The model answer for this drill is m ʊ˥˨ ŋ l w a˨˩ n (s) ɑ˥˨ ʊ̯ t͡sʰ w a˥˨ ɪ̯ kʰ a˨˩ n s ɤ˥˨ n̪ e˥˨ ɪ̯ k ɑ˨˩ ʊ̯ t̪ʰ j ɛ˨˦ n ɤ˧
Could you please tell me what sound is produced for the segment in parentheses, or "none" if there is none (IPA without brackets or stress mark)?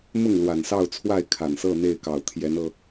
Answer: s